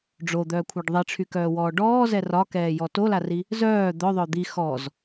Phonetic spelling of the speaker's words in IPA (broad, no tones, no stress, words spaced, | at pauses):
ɖ͡ʐod̪œːkʷʰaɖ ðˤiʈ͡ʂʰykœːwɔː ɖɔːzɛ rɒkɛːjɔ tolari | zœː d̪œðˤœ d̪i xɔz